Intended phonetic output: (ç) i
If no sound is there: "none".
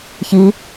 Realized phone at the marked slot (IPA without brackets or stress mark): ç